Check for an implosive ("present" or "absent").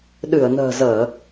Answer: present